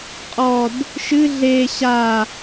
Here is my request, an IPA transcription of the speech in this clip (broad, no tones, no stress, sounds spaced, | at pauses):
qʼ ɔ d | ʃ ɨ ɮ e ɕ a